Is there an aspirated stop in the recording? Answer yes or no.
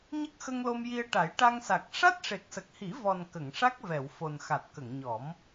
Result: no